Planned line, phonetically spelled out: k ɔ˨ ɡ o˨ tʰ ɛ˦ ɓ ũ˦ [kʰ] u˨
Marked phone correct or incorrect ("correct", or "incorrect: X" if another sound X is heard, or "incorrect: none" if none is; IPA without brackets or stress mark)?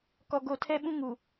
incorrect: ŋ